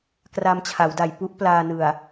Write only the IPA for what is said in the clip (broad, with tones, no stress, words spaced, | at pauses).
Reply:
kra˧mt͡ɕʰa˩˦wda˨˩j pu˥˩ʔplaː˧nɯ˨˩a̯